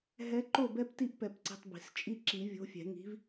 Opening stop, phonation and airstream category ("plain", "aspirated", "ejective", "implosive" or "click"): click